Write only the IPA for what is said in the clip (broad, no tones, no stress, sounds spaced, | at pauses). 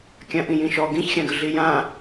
kʲ ã ʔ ĩ j ĩ ʃ ɔ ɡ ĩ ç xʲ ã ɡ ə ɮ i j ã